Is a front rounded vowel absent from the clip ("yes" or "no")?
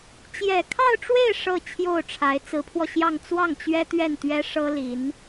yes